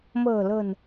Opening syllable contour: low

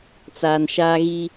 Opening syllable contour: low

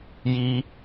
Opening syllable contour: high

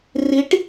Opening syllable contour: rising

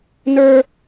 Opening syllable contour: high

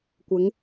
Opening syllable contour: rising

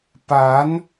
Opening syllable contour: rising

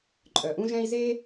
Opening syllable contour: low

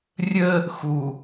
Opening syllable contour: high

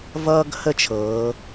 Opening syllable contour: high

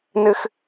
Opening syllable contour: high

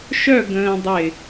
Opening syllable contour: falling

